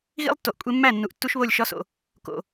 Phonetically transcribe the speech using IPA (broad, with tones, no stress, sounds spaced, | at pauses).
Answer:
ɣ ḭ˦ lˠ tː o˨ ʔ kʷʼ e˧ mː æ˦˨ nː u˨ ʔ tː u˦ ʃ β o˦˨ lʲ ʃ ɒ˦ s o̰˨ | k o̰˨